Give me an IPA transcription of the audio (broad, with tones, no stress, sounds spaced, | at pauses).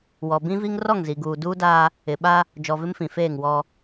w ɔ˨ b ĩ˦ v i˦ ŋ r ɔ˦˨ ŋ z i˨ ɡ uː˨ d uː˦ d aː˦ | ɪ˨ ɓ a˦ | d͡ʒ ɔ˨ v ɪ˦ m f ĩ˨ f eː˦˨ ŋ w ɔ˦